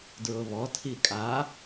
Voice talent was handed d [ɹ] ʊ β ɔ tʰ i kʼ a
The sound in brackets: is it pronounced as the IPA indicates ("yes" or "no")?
yes